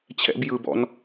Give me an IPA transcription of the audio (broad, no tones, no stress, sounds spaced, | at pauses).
t͡ɕʰ ɛ̰ b j ɯ b ɔ̰ n